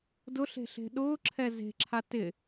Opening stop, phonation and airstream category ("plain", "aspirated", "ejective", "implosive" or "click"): plain